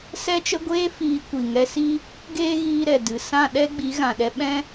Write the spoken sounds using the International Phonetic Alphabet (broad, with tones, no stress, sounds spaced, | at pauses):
s ɛ˦ t͡ʃ ə˦ ɡʷ eː˦ f iː˧ kʷ i˨ ŋ ɛ˧ s i˦ | ɡ eː˦ ɣ iː˧ ɾ ɛ˨ d ɨ˨ s ã˦˨ ɗ ɛ˧ ɡ͡b i˨˦ ɣ ã˨ ɗ ɛ˧ ɓ ɛ̃˦